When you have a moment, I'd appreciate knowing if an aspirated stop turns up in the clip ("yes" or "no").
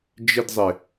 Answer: no